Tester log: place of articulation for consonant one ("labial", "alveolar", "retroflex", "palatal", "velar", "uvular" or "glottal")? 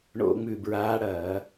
retroflex